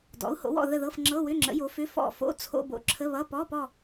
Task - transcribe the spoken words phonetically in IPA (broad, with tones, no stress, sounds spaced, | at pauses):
d ɔ̰˩˥ u̯ h o̰˩˥ w ɔ̰˦˨ ð ə˦˨ ð ɤ˧˥˧ f ŋ͡ǁ ɤ˧˥˧ w ʏ˧˥˧ ŋ͡ǁ ə̰˩˥ j o˩˥ f ʏ˧˥˧ f ɔ̰˦˨ f o̰˧˥˧ t͡sʰ o̰˧˥˧ b o̰˦˨ ǁʰ ə˧˥˧ β ʌ˧˥˧ p ɔ˧˥˧ p ɔ˦˨